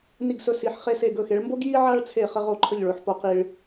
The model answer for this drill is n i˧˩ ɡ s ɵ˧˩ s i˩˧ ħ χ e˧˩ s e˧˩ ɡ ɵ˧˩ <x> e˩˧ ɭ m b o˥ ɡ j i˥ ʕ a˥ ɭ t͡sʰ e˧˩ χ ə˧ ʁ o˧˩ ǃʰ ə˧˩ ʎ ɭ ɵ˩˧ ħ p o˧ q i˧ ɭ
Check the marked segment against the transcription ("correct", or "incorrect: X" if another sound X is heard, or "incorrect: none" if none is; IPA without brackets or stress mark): correct